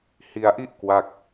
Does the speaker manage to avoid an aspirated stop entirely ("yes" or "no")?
yes